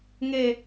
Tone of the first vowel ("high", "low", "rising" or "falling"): low